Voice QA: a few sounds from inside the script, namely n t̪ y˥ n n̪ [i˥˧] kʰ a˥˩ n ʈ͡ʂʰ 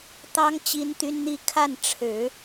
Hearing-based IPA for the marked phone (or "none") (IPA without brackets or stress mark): i˥˧